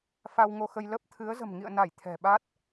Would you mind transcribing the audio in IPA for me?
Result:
fa˧wŋo˧xə˧j lə˦˥p̚t̪ʰɨ˨˦ə̯ zə̤˨˩mŋḭ˧˨ə̯na˧˩j t̪ʰɛ̤˨˩ɓa˦˥t̚

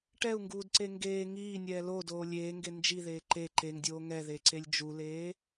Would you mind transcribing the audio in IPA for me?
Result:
ʈɛu̯ŋɡuːdǀe ŋɡeː ŋiːnʲɛː lodoː lʲeːŋɡe nd͡ʒiðeː ǃe ǃeŋdʲoː ŋɛðeǀelʲ d͡ʒuleː

